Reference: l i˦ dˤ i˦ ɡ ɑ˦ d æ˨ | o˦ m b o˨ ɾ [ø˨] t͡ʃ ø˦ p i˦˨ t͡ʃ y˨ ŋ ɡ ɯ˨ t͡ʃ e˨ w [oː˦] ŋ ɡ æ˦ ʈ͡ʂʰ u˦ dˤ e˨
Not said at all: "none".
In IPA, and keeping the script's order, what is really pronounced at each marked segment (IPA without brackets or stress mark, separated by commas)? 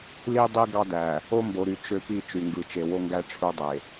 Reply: y˨, o˦